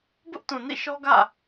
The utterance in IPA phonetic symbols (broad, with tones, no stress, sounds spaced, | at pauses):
b ʊ˦ ʔ t ũ˨ n ḭ˦˨ ʃ ɔ˦ ɡ ä̰˦˨